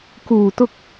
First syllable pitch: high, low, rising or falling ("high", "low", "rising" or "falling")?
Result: low